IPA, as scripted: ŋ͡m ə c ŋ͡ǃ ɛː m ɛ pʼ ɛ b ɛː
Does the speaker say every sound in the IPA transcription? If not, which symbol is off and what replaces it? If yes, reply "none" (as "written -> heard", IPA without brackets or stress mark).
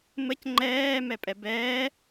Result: ŋ͡m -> m